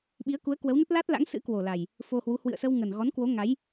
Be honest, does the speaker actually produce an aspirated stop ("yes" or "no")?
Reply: no